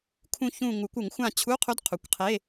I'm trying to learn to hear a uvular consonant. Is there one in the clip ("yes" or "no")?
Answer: yes